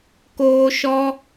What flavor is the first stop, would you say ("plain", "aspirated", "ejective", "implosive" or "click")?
plain